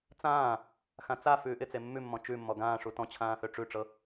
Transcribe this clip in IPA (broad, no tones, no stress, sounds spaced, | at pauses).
t͡s ãː | x ã t͡s a f ʉː ʔ ɪ t͡s e mː ʉ mː ɔ̃ t͡ʃ ʉ mː ɔ ɡ ãː ʂ u t ɔ̃ t͡ɕʰ ãː h ø ʈ͡ʂ ʉ ʈ͡ʂ ɤ